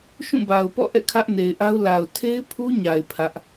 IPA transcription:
ʃ ũ˦˨ b a˨ ʊ̯ p ɔ̰˦˨ ʔ ɛ̰˦˨ kʰ ä˦ ʔ n e˨ ɪ̯ ʔ a˦ ʊ̯ l a˨ ʊ̯ tʰ e˦ ɪ̯ pʰ u˦ ɲ a˨ ɪ̯ pʰ ä˦ ʔ

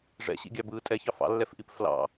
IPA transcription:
ʐ ɛ̰ ɕ ḭ ɡʲ ɑ b ɯː tʼ ɛ ç ɑ f ɑ̰ lː ɛ f ʔ i p f l ɑ̰

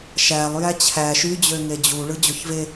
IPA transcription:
ʃ æ lˠ j æ t͡ɕʰ æ ʃ y d͡ʑ ø ŋ e d͡ʑ u ɭ ɯ d͡ʑ o ç v e

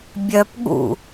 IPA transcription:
bʲ œ p ɠ ṵ

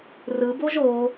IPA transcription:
r ɯ b o ʒ o

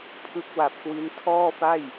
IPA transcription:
pʰ ɯ˦˥ k̚ w a˨˩ p̚ k w i˦˥ n tʰ ɔː˥˩ f a˥˩ j

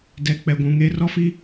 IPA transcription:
d ɛ˨ k͡p ɛ˨ ɡʷ ũ˨ ŋ e˦ r ɔ˦ f i˦

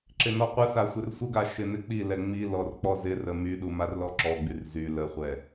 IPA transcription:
ǁ ɪ n ɔ qʷ ə s a sʷ ɪ r sʷ ə ɡ a ʃ ɪ n ɪ k͡p i l ɛ ŋ͡m i l ɔ r k͡p ɔ z ɪ r ə m y ɗ u m a r l ɔ ǁ ɔ ɡ͡b y r z y l ə χʷ ɛ

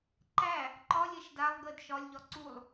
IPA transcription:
ǃ æ | ǃ ɒ lʲ ɛ ʃ d a lˠ ɡ ə d ʃ ɒ lʲ ʎ ɒ ǀ u lˠ

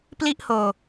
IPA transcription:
p l i˥˩ ʔ h oː˧

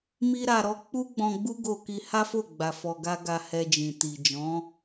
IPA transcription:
m i˦ ɾ a˧ ɾ ɔ˦ k͡p u˦ ɡ͡b ɔ̃˧ ɡ͡b u˦ ɡ o˧ k i˧ h a˦ f o˦˨ ɡ͡b a˨ f ɔ˧ ɡ a˦ ɡ a˧ h ɛ˧ d͡ʒ ĩ˨ t i˨ d͡ʒ ɔ̃˨˦

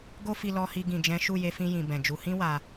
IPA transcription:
ɡ o˦ f i˧ l ɔ˧ h i˧ ɡ ĩ˨ d͡ʒ ɛ̃˨˦ ʃ u˦˨ j e˧ f ĩ˧ j ĩ˨ b ɛ̃˨ d͡ʒ u˨˦ h ĩ˦ w a˧

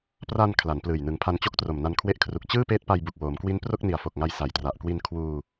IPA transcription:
p r a˧ n kʰ l a˩˦ n p l ɯː˨˩ j n ɯ˩˦ ŋ pʰ a˧ n t͡ɕ o˦˥ k̚ t r o˨˩ m n a˧ n kʰ w e˦˥ ʔ kʰ r u˨˩ k̚ t͡ɕ ɯː˥˩ p eː˦˥ t̚ p a˧ j b u˨˩ k̚ w oː˩˦ m k w i˦˥ n p r o˥˩ k̚ n i˨˩ a̯ f o˨˩ k̚ ŋ a˧ j s a˨˩ j t r a˨˩ ʔ k w i˧ n kʰ w uː˧

